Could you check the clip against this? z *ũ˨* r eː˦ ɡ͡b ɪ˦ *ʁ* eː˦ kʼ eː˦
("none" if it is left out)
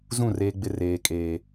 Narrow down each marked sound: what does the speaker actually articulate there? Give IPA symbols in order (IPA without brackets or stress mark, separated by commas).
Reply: ũ˦˨, r